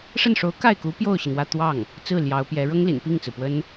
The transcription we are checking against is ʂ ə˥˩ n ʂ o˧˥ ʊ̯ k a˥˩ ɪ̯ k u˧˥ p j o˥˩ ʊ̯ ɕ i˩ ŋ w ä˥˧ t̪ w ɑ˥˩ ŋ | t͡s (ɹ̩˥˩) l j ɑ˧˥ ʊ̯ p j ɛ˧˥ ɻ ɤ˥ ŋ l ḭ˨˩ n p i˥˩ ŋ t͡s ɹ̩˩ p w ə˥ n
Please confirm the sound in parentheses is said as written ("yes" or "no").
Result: yes